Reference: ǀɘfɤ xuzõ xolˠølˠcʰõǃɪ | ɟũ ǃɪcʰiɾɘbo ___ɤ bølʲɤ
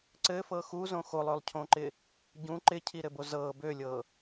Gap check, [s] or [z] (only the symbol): z